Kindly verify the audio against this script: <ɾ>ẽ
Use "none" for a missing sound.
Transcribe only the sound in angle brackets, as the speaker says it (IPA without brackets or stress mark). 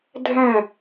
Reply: dʱ